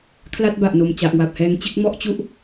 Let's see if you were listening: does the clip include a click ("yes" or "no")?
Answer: no